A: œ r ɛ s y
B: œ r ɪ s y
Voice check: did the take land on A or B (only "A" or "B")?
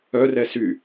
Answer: A